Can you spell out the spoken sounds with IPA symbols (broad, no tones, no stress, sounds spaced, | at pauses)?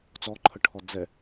t͡s ɔ ǃʰ ə ʈʰ ɔ d͡z ɛ